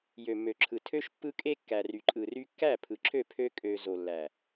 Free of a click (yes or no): no